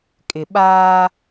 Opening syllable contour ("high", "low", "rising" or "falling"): low